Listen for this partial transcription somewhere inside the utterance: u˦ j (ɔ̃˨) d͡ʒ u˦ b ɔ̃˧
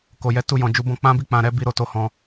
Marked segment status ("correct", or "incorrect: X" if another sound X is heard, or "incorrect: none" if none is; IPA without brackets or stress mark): incorrect: ɔ̃˧